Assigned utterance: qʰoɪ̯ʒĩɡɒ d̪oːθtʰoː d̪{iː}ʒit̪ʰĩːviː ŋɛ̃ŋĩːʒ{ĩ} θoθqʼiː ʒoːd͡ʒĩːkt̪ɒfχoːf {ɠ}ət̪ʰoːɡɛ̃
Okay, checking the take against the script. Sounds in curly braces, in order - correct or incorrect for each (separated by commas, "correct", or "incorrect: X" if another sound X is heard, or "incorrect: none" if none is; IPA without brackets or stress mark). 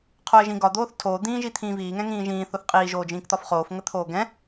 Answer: incorrect: ĩː, incorrect: ĩː, incorrect: ŋ